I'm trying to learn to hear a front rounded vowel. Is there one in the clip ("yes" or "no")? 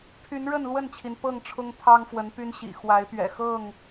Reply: yes